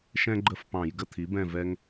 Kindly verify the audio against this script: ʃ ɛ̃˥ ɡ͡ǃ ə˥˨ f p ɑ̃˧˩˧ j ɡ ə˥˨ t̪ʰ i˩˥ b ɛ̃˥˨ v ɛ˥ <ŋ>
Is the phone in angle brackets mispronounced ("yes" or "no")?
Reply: no